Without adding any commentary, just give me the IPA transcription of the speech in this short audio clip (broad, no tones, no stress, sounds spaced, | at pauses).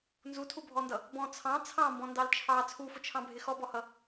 n z u tʰ u bʱ ɔ n d ʌ | b ɔ̃ t͡sʰ ɑ̃ t͡sʰ ɑ̃ m b ɔ̃ n d ɑ l t͡ʃʰ ɑ t͡sʰ u f ʊ t͡ʃʰ ɑ̃ bʱ ɪ x ɔ b ɔ h ʌ